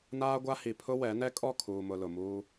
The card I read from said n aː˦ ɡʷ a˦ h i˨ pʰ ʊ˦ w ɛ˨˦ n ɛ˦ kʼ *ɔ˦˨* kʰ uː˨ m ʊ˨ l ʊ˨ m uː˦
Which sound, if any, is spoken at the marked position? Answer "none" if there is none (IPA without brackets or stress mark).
ɔ˦˨